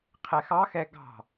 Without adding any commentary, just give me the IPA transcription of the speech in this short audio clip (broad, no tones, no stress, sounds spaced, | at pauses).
qʰ ɛ x ɑ x ɛ ɡ ɑ̤